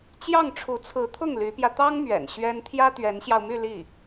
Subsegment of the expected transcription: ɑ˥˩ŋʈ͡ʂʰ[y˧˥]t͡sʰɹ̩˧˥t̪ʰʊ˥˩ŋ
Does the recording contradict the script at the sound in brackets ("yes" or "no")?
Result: yes